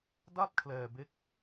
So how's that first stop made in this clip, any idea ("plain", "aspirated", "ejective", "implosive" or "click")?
plain